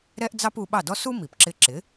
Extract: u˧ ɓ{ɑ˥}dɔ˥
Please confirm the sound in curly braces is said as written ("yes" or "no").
no